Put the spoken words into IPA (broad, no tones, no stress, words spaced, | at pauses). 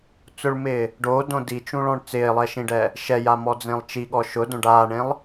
t͡sʊɭmɪː | ɖoːdõ dit͡ʃũɭɔ̃ɳ t͡sɪːlˠɛʃĩɖɛ | ʃɛjamɔd͡zẽlˠ t͡ʃiɠɔ ʃʊdõɖ aːɳẽlˠ